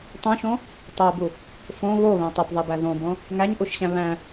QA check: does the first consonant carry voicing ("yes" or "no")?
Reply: no